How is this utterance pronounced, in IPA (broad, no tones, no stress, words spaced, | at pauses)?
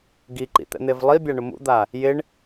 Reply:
ɡiǃḭt̪ɛ̰n̪ev lˠibʲaɳʊ mṵd̪a | jɪɳ